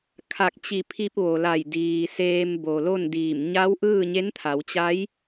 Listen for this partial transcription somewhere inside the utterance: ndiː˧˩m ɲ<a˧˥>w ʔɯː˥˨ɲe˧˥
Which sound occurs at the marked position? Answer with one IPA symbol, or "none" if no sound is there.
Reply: a˧˥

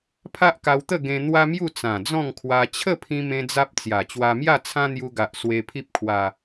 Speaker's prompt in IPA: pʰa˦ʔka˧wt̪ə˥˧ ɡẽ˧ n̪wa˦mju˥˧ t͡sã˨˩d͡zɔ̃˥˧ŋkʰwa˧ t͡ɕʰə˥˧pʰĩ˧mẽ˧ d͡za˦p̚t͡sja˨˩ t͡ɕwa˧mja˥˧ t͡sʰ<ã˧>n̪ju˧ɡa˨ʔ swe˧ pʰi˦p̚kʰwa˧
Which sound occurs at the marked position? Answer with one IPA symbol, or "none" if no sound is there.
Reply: ã˦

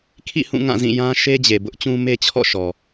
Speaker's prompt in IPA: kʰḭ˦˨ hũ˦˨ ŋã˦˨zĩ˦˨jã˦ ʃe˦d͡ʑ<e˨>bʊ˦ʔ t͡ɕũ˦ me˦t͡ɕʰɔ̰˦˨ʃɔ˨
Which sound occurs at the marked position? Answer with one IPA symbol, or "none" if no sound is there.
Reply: e˨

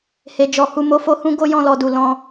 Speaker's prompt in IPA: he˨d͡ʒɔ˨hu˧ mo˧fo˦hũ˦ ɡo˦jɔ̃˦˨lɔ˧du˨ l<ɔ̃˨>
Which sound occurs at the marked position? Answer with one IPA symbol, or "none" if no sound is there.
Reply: ɔ̃˧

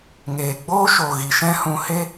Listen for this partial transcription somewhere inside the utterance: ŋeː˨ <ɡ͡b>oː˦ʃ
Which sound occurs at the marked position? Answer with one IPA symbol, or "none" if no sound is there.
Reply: ɡ͡b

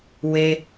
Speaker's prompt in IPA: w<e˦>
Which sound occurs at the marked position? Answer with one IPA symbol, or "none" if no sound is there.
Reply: e˦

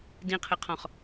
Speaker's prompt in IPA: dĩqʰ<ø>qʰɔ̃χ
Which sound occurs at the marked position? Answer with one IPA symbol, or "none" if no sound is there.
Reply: ɘ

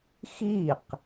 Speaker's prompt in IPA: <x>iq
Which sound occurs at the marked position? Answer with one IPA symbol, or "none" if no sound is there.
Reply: x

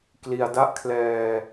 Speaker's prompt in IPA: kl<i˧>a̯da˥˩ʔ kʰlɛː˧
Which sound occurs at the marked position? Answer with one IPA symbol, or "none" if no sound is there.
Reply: i˧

